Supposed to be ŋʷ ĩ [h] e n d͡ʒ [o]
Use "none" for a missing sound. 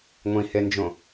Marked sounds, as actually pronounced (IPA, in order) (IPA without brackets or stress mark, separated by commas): h, õ